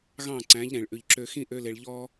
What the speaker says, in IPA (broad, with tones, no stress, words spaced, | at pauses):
ɣɑ̃˦˨ǀæ̃˨˦ʎɾẽ˨ɭ ʔʉ˨ʎǁø˧xĩ˦ ʔø˦le˧ɭ ʎɔ˦